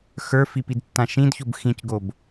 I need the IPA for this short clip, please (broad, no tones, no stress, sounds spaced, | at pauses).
x ə˞ f i p i d tː ã ʃ ĩ d ç o b x ĩ c ɡ o b